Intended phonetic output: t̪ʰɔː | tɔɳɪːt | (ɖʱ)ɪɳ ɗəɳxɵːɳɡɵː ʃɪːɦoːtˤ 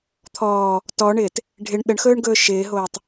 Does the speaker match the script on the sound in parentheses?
yes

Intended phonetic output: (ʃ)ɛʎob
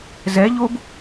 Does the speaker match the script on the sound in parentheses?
no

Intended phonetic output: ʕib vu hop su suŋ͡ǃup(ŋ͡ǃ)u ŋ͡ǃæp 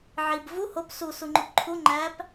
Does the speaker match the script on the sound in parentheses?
no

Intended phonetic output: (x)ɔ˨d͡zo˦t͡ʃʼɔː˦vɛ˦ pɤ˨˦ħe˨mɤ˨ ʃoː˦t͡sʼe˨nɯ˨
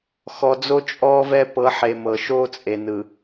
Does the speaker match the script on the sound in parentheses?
yes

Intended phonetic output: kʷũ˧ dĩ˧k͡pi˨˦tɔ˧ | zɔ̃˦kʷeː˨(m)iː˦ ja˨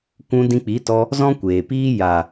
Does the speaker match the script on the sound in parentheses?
no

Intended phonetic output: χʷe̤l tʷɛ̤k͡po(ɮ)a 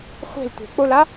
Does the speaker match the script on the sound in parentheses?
no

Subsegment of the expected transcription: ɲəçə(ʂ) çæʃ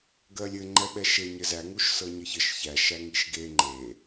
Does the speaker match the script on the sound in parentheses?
no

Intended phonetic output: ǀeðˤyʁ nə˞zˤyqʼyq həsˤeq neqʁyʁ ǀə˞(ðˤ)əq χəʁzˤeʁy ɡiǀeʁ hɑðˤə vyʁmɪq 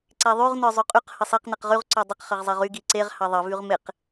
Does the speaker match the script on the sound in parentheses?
no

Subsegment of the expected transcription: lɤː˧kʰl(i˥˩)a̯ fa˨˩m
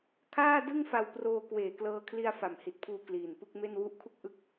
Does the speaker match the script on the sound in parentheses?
no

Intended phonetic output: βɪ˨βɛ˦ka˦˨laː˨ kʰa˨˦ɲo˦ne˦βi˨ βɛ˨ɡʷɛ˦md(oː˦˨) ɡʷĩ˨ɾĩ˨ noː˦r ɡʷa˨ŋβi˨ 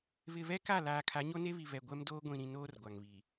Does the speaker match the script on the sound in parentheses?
no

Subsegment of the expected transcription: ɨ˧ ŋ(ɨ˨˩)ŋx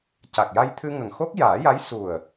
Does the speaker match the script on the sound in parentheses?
no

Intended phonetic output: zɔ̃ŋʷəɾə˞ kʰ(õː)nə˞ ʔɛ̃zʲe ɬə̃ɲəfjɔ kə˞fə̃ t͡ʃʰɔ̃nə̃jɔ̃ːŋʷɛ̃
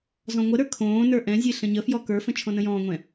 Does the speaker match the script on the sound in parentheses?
yes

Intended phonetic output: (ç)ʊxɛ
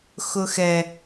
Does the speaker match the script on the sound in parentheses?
no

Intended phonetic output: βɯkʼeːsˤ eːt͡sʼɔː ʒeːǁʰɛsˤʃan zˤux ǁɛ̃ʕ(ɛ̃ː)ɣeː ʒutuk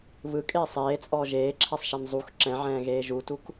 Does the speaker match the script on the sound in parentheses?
yes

